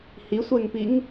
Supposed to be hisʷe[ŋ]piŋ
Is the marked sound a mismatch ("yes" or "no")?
no